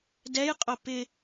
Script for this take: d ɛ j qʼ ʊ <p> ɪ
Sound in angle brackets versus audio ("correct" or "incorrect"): correct